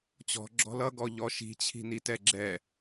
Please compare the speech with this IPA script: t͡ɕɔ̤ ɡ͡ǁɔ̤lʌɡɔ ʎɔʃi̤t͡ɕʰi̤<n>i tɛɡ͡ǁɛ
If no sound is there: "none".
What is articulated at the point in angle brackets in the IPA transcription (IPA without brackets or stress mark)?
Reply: n